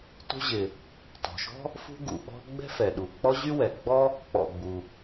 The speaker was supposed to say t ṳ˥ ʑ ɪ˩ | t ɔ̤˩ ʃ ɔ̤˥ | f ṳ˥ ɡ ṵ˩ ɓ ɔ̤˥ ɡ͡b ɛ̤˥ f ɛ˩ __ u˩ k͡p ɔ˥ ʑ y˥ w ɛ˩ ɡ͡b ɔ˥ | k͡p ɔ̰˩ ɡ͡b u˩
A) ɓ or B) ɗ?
B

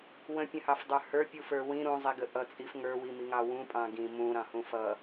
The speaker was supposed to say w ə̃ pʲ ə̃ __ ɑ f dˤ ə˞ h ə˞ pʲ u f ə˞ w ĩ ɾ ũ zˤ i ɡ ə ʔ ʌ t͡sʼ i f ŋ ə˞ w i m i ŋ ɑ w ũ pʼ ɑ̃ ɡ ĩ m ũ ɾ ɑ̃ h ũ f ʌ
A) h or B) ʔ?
A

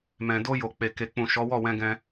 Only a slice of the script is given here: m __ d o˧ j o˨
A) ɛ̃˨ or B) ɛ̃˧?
A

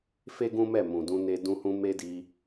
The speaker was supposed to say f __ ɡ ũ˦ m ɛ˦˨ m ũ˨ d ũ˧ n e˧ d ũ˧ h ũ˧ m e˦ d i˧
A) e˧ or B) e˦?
B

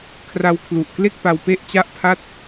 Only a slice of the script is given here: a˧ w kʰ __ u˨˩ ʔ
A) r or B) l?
B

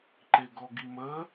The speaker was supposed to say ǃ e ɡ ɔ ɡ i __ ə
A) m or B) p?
A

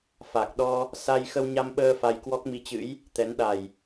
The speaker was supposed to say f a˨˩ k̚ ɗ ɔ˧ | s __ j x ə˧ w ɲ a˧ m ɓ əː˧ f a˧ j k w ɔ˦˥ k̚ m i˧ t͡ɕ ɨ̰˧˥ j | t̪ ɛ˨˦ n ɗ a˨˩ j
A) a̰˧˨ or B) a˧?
B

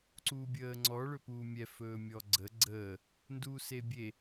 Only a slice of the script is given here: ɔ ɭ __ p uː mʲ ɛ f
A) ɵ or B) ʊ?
A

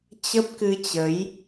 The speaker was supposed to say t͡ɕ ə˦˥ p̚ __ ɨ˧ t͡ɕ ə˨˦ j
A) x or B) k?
B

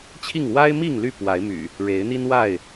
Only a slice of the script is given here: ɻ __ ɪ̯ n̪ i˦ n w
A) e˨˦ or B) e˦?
A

